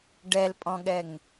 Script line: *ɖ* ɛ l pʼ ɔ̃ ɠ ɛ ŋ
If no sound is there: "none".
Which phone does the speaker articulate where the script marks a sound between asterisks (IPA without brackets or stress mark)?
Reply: ɖ